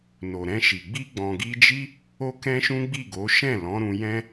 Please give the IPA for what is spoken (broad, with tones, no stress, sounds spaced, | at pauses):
n o˨ ɾ ɛ̃˧ ʃ i˨ ɡ͡b i˧ ɡ͡b ɔ̃˨ ɡ i˧ d͡ʒ i˦ | o˦ k ɛ̃˦ ʃ ũ˦ ɡ͡b i˦˨ ɡ o˨˦ ʃ ɛ̃˦˨ l ɔ̃˨˦ ɾ ũ˧ j ɛ̃˦